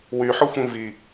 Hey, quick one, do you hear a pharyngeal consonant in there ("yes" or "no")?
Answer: yes